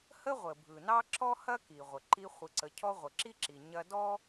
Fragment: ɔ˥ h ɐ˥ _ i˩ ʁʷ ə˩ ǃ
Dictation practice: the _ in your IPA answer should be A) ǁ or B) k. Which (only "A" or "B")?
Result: B